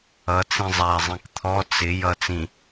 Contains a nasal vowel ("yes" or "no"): yes